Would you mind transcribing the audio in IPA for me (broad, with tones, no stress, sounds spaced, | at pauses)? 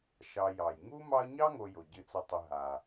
ʃ ɑ˨ j ɑ˩ j ŋ u˥ m ɑ˦ ə̯ ɲ ɑ˥ ŋ o˨ j o˩ ɟ ɨ˨ t͡s ə˨ tˤ ə˨ ɦ a˩